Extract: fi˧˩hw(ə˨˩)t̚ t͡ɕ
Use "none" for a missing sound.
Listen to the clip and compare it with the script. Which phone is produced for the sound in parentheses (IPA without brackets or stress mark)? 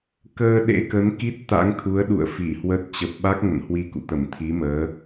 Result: ə˦˥